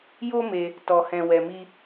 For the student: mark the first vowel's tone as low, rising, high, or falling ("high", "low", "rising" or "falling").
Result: high